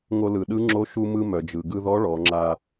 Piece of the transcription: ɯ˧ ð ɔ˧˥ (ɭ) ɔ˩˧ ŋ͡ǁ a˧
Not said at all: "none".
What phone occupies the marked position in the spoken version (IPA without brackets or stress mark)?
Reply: ɭ